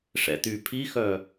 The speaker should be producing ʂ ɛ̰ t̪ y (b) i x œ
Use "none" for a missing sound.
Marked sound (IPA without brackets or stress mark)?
pʰ